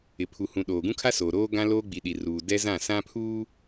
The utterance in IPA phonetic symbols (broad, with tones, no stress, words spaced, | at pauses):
ɪ˨pʰu˨ hũ˨ ɗoː˨ɡũ˦kʰa˦soː˨ ɾoː˦ɡã˦ loː˦ɡ͡bi˨ɗi˨ruː˨ dɛ˦zã˦˨sã˦pʰuː˦